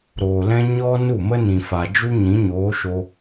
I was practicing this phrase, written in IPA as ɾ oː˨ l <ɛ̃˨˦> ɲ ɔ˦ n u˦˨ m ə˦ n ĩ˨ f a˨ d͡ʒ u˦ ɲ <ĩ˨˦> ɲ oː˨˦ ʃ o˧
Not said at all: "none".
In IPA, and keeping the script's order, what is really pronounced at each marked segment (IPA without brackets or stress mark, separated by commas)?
ɛ̃˦, ĩ˨˦